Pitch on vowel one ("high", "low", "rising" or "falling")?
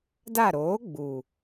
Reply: falling